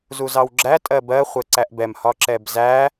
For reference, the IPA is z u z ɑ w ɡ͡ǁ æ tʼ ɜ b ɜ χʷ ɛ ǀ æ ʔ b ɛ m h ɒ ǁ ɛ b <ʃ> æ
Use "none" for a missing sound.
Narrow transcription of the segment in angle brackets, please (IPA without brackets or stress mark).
z